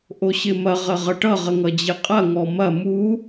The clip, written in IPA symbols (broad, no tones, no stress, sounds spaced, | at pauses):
ʔ o ɕ ɪ m ɐ ʁ ə ʁ ʌ ʈ ʌ ʁ ə ŋ ʌ d͡ʑ ɪ qʼ ɐ ŋ ɔ m ɐ m u